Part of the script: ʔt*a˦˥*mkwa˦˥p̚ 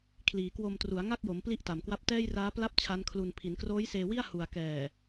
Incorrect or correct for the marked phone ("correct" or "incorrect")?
incorrect